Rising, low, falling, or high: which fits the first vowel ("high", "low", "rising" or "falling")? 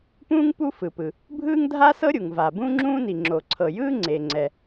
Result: high